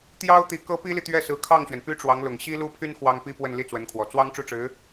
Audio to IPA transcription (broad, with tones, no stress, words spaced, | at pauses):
t̪jɑ˥ʊ̯t̪i˧˥kɤ˥ pi˥li˨ t̪ɥɛ˥˩sɹ̩˧˥kʰɑ˥˩ŋɕɥɛ˩n py˥ʈ͡ʂwɑ˧˥ŋlʊ˨˩ŋ ɕi˥lu˥pʰy˥n xwɑ˥ŋpi˥pwə˥˧n li˥˩t͡swə˧˥nkʰwɔ˨˩ t͡swɑ˥ŋ ʈ͡ʂu˥˩ʈ͡ʂɻ̩˧˥